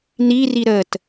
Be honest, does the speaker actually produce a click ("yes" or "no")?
no